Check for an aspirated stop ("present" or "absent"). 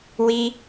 absent